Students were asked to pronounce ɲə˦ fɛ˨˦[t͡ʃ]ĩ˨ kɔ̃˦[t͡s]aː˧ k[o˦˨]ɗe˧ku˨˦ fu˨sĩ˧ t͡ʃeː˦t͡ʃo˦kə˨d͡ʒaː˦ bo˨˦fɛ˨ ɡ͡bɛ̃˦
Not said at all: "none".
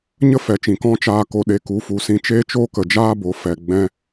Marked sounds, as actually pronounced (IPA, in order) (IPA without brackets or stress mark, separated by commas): t͡ʃ, t͡ʃ, o˧